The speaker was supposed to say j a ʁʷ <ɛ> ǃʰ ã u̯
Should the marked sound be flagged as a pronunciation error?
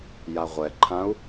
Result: no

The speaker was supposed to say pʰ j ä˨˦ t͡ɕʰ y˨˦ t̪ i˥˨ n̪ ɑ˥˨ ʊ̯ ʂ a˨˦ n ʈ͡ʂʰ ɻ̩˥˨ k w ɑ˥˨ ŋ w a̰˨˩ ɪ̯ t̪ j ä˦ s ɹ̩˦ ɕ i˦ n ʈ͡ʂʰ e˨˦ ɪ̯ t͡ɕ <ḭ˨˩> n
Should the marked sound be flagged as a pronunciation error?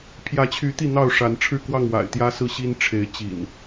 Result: no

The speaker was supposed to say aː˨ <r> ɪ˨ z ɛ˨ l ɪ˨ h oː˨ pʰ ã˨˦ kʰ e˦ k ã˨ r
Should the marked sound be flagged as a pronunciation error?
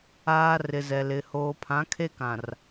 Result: no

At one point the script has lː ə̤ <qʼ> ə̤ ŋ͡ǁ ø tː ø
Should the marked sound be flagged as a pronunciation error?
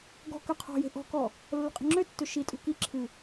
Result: no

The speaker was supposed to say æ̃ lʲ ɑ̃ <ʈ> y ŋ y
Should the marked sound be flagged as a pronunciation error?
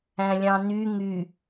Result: yes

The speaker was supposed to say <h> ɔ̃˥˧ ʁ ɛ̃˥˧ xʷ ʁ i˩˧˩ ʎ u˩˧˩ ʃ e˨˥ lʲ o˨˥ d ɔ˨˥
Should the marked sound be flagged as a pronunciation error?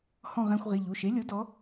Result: no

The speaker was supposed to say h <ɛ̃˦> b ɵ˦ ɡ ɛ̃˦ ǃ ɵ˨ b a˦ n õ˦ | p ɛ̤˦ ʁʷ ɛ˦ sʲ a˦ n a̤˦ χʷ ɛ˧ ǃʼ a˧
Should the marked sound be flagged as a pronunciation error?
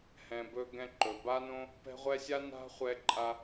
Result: yes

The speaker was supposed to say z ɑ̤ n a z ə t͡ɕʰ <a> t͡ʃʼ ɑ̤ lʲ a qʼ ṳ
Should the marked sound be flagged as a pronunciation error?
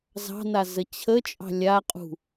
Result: yes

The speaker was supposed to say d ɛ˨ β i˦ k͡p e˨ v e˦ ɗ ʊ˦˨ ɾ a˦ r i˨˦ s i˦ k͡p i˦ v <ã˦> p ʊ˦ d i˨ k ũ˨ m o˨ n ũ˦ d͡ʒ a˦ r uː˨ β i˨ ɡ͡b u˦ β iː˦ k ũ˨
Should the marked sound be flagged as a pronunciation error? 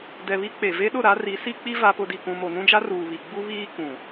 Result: yes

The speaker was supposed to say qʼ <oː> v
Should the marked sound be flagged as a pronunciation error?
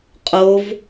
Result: yes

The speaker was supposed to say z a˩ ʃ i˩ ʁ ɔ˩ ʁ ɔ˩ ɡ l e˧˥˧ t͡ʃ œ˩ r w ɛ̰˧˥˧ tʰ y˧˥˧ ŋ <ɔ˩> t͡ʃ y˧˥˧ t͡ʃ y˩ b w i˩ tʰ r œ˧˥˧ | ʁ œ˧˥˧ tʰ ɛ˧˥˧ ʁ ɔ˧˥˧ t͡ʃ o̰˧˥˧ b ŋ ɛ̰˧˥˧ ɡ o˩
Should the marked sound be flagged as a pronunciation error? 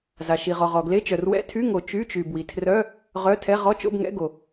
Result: yes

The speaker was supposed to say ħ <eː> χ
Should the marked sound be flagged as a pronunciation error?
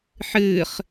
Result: yes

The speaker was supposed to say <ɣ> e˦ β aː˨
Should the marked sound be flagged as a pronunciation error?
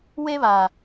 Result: yes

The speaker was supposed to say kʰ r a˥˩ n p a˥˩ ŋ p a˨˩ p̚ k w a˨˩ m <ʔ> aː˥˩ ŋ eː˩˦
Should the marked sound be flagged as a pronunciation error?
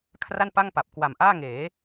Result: no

